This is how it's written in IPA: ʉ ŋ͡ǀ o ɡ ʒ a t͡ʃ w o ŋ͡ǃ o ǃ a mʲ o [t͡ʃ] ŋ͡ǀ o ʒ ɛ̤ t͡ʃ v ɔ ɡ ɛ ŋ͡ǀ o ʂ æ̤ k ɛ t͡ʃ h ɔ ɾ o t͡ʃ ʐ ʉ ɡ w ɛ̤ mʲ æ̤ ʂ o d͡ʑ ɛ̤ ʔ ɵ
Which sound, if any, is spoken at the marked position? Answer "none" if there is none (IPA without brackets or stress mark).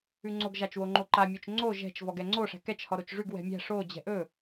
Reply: t͡ʃ